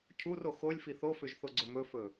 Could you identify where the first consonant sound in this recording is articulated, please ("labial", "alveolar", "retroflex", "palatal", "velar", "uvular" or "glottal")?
palatal